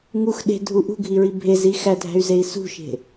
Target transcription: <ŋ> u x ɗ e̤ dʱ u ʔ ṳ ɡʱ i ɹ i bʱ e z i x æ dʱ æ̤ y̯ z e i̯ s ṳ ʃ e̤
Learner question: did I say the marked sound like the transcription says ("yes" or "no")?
yes